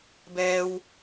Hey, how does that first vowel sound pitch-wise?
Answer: low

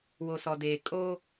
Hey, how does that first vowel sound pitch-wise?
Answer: low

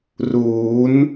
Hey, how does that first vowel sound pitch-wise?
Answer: rising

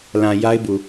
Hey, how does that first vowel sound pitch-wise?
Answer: low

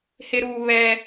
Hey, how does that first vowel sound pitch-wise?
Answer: high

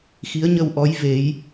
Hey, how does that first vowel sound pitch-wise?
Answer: rising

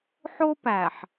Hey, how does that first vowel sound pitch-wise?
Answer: high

